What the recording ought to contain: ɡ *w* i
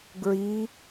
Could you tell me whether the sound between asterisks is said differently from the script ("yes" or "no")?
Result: yes